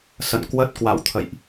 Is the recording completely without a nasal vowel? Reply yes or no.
yes